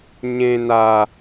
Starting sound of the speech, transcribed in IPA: ɲ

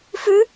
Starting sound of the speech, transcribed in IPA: f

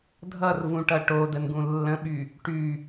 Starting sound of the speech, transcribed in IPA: dʱ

